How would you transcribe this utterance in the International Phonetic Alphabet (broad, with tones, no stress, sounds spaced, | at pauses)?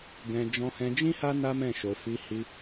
ɡ ɛ̃˧ d͡ʒ ɔ̃˧ h ɛ̃˧ d͡ʒ ĩ˦ h a˦ n a˦ m ɛ̃˦˨ ʃ o˧ f i˧ h i˧